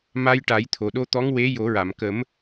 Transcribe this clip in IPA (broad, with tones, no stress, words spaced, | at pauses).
ma˧jʈa˨˩˦jt̪ʰo˨˩ɗo˧ t̪ɔ˧˥ŋwe˧˥ jo˨˩˦ɹa˨˩˨m kə˨˩˦m